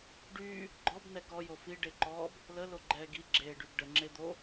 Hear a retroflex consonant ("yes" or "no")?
yes